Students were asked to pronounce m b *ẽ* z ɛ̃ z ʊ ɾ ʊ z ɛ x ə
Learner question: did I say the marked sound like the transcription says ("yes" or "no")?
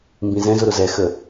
no